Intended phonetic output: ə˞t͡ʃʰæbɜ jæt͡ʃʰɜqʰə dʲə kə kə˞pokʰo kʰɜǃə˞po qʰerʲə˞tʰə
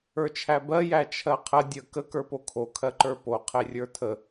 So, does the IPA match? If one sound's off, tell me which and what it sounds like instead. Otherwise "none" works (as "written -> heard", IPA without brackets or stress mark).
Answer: none